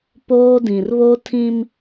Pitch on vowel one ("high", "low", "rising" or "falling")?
high